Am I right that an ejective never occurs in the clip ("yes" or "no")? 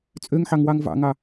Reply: no